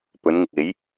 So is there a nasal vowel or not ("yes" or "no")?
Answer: no